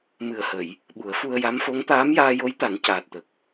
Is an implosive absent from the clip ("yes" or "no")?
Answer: no